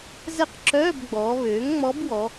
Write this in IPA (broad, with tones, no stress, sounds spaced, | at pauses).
z ɛ˥˩ q ǁ œː˧˥˧ b ɡ͡b ɔː˩˧ β øː˩˥ ŋ ŋ͡m ɔ˧˥ b w ɔ˩˧